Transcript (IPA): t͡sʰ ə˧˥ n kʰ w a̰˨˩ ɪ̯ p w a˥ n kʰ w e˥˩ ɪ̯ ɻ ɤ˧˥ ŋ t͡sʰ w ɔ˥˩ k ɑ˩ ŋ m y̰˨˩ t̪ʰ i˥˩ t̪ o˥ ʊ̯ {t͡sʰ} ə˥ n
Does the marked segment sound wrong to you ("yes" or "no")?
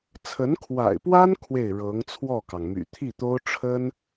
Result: yes